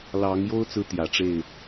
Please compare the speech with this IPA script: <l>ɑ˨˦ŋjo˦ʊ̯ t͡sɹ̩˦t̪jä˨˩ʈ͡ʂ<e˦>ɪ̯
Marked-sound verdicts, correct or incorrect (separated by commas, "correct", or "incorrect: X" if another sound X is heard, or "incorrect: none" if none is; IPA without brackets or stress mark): correct, incorrect: e˥˨